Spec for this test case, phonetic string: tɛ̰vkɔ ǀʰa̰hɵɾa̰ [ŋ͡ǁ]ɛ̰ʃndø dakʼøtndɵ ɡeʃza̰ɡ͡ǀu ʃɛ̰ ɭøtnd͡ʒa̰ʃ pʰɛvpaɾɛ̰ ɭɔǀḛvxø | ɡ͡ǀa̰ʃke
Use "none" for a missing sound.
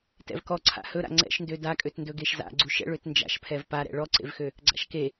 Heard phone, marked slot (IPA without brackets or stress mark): ŋ͡ǀ